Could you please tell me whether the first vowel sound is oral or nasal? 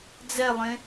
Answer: oral